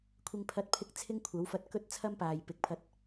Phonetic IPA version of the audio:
kʷʰɪ˧ŋpʰɐ˧t̚pʰɪ˧k̚ t͡sʰɪ˥ŋkʷʰɐ˨˥wfɐ˧t̚kɵ˥t̚ t͡sʰɐ˥mpaː˨j pɪ˨˥k̚pʰɐ˧t̚

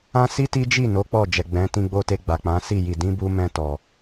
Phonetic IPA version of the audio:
ã˦ si˦ti˦d͡ʒi˦˨ no˨˦ k͡pɔ˦˨d͡ʒɛ˨ ɡ͡bɛ̃˨˦ tĩ˧ɡ͡bo˧te˧ ɡ͡ba˨k͡pã˨˦si˦˨ ji˨ dĩ˨˦bu˧mɛ̃˧ tɔ˨

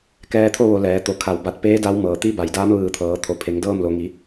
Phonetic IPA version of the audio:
kɛː˧t̪ʰo˥˨ʋo˩˧ lɛː˩˧ t̪o˩˧ kʰa˧˩wba˧t̚ peː˧˥ da˧˥w mɤː˩t̪i˧˥ ba˩jdaː˧˥m ʋɯː˧˩t̪ʰɤː˩˧ t̪ʰo˩˧pʰe˩˧ŋ dɤː˥˨mlo˩˧ŋi˩˧

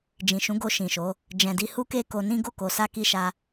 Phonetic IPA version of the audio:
d͡ʒĩ˨ʃũ˨˦ ɡo˧ʃĩ˨ʃo˨˦ | d͡ʒɛ̃˨di˧ hu˦ke˦ko˧nĩ˦ ɡo˦˨ko˨sa˧ ki˦ʃa˦

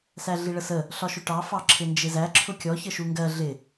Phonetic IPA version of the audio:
sæɮiɭəsə | ɬɒʃʊʈɑ fɑǁʰɪnd͡ʒɪzæ ǁʰʊkʲɔ çəʃuŋɡɜ ɮɪ

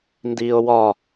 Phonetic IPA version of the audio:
ndiːo̯wɒ

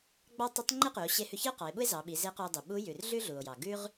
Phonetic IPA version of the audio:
ɡ͡bɑ˥ tˤi˧˥tˤŋ͡ǃe˥qʉ˩˧o̯ ɕe˧˥hʉ˧çi˥o̯ qɑ˩˧e̯ɓu˥e̯zɑ˩˧ ɓi˩˧ze˧˥ qu˧o̯dˤu˩ ɓu˧˥jʉ˩r ɮʉ˥ɮu˩o̯jɑ˩ ɡʉ˥ʁ

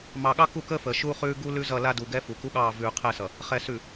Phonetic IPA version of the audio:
mɑ˨ ɠɑ˦ku˦˨kəː˦fəː˨ ʃu˦χʉː˦ ɡu˦ lʉ˦zʌ˦˨ la˦du˨ɡɛ˦ fu˨ku˦ɠɑː˦˨ vʉː˨ qʰɛ˦˨sʌ˨ | χɛ˨ sʉ˨

